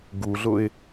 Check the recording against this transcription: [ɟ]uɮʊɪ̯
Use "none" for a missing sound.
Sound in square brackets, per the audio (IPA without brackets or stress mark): ɡ